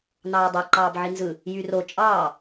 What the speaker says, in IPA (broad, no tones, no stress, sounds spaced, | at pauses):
n ɑː dˤ e ǃ ɑː b ʕ i n z ɯ | j y r o t͡ʃʼ ɑː